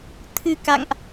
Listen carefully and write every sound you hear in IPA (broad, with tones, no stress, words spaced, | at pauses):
t̪ʰɨ˧ka̰˧˨ŋʔ